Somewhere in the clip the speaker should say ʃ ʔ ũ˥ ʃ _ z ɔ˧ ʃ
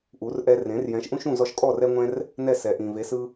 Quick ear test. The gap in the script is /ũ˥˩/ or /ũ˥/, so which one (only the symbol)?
ũ˥˩